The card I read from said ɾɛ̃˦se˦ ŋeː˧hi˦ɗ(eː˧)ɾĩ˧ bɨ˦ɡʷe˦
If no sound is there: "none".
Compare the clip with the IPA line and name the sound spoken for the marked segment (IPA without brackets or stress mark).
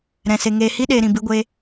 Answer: eː˧